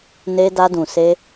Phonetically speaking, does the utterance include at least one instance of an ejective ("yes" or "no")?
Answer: no